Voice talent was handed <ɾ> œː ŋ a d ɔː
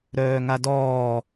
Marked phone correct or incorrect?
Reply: correct